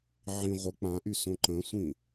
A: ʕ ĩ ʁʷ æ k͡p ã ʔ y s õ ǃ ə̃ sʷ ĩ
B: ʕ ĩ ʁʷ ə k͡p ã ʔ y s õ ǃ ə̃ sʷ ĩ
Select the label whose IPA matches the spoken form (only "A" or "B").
B